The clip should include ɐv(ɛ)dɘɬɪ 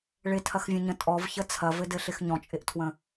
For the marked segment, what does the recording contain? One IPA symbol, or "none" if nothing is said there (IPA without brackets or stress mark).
ɘ